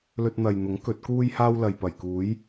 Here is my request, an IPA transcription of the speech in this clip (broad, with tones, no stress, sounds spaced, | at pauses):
l ɵ˧ t̚ n̪ ɐ˨ j n̪ ʊ˨˥ ŋ k ɵ˨˥ t̚ k uː˥ j h aː˥ w l ɐ˨ j p ɐ˨˩ j k uː˨˥ j